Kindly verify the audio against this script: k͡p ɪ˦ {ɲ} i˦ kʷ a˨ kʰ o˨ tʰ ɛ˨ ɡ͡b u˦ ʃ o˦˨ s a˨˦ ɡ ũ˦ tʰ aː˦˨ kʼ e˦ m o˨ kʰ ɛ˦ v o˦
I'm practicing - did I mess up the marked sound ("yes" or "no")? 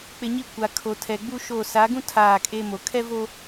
no